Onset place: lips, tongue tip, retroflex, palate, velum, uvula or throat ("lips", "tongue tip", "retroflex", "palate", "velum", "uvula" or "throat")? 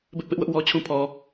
lips